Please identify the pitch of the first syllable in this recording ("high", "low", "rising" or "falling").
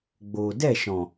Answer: low